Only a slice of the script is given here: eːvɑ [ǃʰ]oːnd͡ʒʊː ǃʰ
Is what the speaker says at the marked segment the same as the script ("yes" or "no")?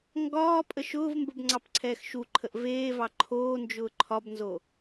yes